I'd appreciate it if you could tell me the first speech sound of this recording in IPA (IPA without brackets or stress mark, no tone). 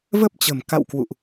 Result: v